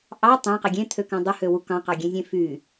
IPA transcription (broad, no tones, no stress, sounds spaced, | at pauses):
ʔ ɑ tˤ æ̃ q e ɡʲ ẽ t̪ʰ ø k æ̃ dˤ u h ø w u k ɑ̃ q ɑ ɡʲ ẽ zʲ ẽ f y